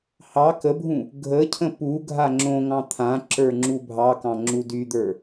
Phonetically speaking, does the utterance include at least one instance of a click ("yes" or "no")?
yes